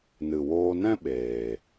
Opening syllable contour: low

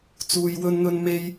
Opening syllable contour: low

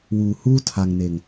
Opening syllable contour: low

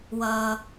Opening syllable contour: high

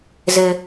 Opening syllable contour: high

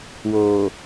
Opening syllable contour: low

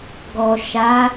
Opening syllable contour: low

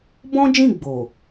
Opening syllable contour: high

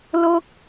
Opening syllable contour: high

